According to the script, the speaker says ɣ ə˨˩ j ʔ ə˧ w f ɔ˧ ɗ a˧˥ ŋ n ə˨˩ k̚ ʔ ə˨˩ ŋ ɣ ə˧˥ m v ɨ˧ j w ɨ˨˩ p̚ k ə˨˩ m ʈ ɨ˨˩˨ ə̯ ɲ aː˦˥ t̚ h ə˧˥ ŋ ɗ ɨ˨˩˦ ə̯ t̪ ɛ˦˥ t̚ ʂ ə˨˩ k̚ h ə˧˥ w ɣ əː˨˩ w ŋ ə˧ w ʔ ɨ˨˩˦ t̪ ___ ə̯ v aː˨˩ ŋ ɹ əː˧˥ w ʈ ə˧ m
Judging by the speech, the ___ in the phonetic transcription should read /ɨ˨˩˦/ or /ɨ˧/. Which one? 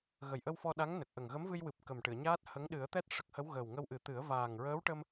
ɨ˨˩˦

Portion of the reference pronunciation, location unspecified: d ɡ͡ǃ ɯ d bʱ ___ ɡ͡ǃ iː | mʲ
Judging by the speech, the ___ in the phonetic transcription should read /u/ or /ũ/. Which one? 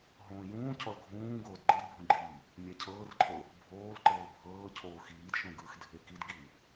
ũ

